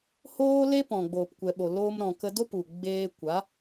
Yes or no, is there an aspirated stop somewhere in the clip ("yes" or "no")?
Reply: no